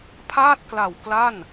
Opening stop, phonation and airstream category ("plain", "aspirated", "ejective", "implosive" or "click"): aspirated